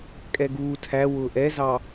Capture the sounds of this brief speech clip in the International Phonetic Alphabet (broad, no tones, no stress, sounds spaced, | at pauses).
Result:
kʼ ɛ ɡ uː tʰ æ w ʊː ʔ ɛ z ɑ